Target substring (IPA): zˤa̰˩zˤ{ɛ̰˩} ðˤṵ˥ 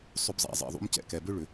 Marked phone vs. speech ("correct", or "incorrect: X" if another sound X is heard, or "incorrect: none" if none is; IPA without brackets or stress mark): correct